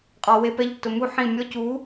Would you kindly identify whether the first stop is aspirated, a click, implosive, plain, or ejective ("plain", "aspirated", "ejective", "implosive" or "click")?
ejective